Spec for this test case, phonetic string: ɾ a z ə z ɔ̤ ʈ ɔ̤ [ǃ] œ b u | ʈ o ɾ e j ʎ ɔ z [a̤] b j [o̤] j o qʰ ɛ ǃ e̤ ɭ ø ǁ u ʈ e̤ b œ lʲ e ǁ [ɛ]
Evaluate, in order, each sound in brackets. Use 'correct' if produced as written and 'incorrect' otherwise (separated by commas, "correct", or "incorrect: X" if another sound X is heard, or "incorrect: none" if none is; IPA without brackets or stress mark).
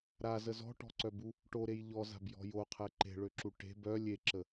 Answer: incorrect: ǀ, correct, incorrect: ɔ̤, incorrect: ə